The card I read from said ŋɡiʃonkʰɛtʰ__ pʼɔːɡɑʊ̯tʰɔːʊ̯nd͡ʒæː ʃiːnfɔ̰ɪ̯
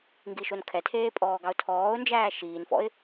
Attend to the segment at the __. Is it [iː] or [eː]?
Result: eː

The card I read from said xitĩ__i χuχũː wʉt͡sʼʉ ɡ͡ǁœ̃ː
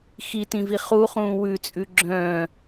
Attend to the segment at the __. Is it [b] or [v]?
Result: v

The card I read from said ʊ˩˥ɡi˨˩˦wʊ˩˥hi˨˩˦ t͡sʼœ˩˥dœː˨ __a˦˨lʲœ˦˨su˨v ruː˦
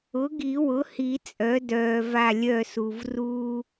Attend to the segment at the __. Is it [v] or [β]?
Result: v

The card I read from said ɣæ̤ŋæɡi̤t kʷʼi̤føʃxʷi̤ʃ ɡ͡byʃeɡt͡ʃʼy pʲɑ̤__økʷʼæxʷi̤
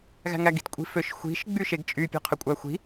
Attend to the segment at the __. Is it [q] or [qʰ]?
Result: qʰ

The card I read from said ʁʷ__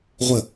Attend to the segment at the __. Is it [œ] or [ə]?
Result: ə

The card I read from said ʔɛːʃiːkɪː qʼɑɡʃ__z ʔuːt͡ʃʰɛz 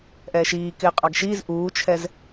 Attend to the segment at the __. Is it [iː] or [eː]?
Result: iː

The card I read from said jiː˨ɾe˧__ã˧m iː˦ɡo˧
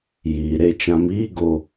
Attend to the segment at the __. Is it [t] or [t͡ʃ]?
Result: t͡ʃ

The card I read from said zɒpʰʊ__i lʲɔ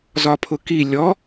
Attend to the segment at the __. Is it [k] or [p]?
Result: k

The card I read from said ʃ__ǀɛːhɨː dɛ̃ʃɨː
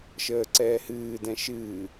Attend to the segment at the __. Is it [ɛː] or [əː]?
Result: əː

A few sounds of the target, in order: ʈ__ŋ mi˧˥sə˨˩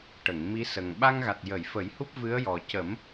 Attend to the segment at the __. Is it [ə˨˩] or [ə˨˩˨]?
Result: ə˨˩˨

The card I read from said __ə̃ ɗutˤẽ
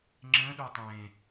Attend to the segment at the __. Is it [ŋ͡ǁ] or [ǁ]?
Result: ŋ͡ǁ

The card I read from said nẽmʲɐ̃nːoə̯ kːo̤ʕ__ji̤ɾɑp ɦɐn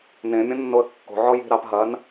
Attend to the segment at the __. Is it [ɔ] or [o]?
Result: ɔ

